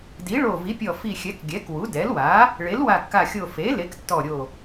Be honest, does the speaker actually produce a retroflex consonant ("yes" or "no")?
yes